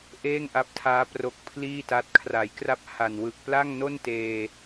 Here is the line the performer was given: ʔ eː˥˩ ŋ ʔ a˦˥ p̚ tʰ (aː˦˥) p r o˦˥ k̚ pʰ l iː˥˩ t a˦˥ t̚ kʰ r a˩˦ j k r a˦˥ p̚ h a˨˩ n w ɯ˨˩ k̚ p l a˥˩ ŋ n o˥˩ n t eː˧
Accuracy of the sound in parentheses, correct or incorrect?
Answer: correct